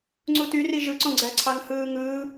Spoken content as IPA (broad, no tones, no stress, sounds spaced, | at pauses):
ŋ͡ǀ u t y r i ʒ ɯ ǀ õ ɡ͡ǀ æ ǀʰ ɑ ŋ h ɯː ŋ ɯː